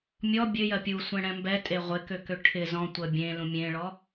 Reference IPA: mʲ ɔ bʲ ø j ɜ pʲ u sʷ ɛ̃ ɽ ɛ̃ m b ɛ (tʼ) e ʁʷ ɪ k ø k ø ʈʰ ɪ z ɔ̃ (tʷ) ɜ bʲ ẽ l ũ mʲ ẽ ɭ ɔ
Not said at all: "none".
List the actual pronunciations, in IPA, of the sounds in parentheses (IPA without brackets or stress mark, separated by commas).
tʼ, tʷ